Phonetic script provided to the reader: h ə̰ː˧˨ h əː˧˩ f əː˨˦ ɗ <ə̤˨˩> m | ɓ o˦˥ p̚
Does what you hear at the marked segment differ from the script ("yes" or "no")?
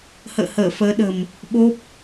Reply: no